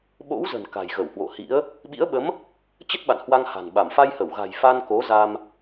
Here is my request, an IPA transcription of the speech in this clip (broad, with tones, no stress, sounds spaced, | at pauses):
ɓ o̰˧˥ w z ə̤˨˩ n k a̤˨˩ j ɣ ə˧˩ w h w o̰˧˨ h ḭ˧˥ ə̯ | ɓ ḭ˧˥ ə̯ ɓ ə˨˦ m | t͡ɕ ə˦˥ t̚ ɓ a̰˧˨ n h w a˧ ŋ h a̤˨˩ n ɓ a˧˩ m f a˧ j h ə˧˩ w ɣ a̤˨˩ j f a˧ n k o˨˦ z a˧ m